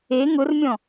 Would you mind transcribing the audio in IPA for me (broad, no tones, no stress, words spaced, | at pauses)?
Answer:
e ŋʊrmʲɔ̃